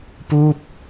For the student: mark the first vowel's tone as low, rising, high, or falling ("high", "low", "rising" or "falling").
falling